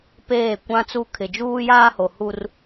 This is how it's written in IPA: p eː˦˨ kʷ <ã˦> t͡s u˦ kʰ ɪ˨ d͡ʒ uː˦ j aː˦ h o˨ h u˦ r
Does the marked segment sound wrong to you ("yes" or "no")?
no